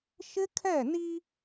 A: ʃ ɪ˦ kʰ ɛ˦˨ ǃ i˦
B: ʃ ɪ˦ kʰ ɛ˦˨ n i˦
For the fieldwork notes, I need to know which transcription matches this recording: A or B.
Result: B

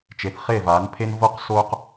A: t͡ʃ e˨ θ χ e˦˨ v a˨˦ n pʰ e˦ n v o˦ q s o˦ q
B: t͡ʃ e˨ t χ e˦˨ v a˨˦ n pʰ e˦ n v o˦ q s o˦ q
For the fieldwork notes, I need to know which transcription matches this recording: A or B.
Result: A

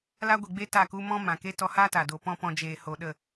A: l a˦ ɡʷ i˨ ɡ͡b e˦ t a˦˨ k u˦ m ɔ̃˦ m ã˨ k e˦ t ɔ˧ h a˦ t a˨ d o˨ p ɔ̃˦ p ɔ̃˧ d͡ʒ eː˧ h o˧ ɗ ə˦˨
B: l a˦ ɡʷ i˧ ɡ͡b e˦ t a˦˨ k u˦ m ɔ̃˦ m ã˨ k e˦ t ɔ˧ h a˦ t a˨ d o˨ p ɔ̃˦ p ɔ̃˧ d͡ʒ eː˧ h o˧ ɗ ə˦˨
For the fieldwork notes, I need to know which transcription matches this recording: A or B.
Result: A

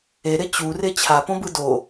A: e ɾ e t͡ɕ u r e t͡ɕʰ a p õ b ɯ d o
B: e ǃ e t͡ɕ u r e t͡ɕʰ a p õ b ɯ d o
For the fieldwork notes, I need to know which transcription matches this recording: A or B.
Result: A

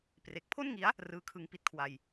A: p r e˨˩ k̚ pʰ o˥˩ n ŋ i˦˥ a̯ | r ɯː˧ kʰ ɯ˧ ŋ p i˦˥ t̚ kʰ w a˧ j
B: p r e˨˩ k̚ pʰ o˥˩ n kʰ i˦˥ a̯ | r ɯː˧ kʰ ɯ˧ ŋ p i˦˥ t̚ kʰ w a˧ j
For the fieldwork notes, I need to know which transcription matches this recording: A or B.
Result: A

